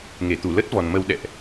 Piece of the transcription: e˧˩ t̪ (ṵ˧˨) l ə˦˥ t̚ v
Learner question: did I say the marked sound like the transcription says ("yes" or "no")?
no